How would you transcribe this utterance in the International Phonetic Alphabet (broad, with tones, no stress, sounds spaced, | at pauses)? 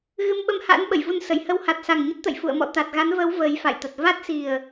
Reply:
ɣ ɨ˧ m ɓ ə˧ m h a̰ː˧˥ n ɓ ə˧˩ j v u˧ n s ə˧˩ j h ə˧ w h a˨˩ t̚ s a˨˩ ŋ ɲ ə˦˥ t̚ t̪ ə̰˧˨ j f ṵ˧˨ ə̯ m ɔ̰˧˨ t̪ a˨˩ t̚ ɣ a˨˦ n v əː˨˦ w v əː˨˦ j f a̰˧˨ j t̪ ə˨˩ t̚ v a˦˥ t̚ s i˨˩ ə̯